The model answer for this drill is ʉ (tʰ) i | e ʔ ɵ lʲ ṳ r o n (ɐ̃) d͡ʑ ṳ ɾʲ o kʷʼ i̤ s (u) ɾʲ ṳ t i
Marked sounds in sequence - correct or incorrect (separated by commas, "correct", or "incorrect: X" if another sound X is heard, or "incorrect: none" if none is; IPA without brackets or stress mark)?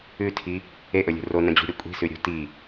correct, correct, incorrect: ʉ